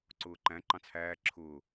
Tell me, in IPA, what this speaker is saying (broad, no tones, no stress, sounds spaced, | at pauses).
ǀ ʊː ǃ æ̃ ǃ ɑ̃ t͡sʰ æː ǁʰ ʊː